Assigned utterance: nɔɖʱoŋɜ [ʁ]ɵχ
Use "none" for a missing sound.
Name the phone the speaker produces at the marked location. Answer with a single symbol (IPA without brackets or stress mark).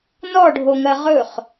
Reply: ʁ